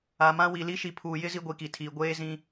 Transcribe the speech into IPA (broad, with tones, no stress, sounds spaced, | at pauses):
a˨ m ã˦ w i˨ l i˦ ʃ i˨ pʰ uː˨ j ɪ˦ z i˦ ɡʷ i˨ k i˨ tʰ iː˨ ɡʷ eː˦ z ĩ˦